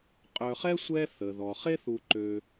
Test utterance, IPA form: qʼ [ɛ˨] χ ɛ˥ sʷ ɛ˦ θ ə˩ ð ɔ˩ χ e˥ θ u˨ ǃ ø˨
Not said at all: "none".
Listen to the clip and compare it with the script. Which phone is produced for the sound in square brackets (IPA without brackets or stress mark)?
œ˨